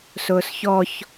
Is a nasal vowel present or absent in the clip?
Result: absent